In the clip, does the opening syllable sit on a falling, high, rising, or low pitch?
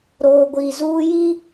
low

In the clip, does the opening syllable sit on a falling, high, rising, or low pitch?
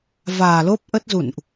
low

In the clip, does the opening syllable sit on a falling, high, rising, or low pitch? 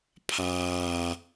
low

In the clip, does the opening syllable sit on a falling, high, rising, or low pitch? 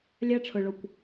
high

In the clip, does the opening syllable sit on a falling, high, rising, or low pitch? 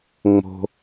low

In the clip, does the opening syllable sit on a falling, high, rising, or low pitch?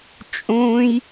high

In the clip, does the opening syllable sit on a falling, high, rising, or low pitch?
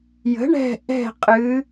rising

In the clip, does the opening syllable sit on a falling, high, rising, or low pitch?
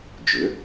rising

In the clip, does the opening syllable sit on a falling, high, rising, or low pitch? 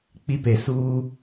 high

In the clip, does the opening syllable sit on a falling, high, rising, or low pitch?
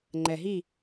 low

